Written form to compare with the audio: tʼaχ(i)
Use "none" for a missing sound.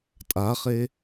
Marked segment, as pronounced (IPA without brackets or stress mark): e